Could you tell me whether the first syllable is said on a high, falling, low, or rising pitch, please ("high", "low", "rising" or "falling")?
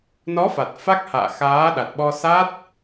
rising